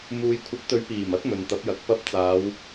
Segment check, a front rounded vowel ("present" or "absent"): absent